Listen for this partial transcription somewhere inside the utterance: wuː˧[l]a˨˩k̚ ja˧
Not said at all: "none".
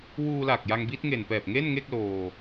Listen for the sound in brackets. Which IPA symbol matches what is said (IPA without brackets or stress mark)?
l